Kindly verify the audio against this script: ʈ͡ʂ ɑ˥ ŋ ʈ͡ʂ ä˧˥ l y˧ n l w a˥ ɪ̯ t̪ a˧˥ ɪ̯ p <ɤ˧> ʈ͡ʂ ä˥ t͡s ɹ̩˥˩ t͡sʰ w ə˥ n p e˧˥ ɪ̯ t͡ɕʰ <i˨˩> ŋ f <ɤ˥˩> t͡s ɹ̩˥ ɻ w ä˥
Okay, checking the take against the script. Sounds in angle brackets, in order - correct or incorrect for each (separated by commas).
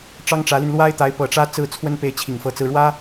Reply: incorrect, correct, correct